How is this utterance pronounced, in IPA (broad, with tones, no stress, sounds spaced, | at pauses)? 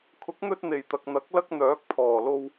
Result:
kʰ ʊ˨˥ k̚ n̪ ɵ˧ t̚ n̪ e˨˩ j t̪ ɐ˨ k̚ n̪ ɐ˨˥ k̚ l ɐ˥ k̚ n̪ œː˨˥ k̚ pʰ ɔː˨˩ l o˧ w